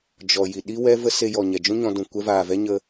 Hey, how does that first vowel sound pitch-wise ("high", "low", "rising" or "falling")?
low